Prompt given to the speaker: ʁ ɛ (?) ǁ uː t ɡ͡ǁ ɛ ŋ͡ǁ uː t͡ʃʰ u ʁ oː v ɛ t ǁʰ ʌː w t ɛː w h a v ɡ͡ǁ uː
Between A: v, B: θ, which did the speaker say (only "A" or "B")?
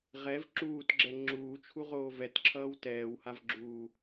A